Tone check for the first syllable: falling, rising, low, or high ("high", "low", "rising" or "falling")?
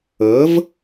rising